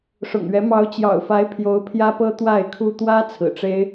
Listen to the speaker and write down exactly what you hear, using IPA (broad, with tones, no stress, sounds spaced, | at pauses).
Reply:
ʂ ʊ̰˨˩ ŋ ɥ ɛ˧˥ m ɑ˧˥ ʊ̯ t͡ɕ j ɑ̰˨˩ ʊ̯ f a˧˥ ɪ̯ pʰ j o˧˥ ʊ̯ pʰ j ä˥ p ɤ˥ t̪ w a˥˩ ɪ̯ kʰ u˥ t̪ w ä˥ t͡sʰ ɹ̩˨˩ ʈ͡ʂ e˥ ɪ̯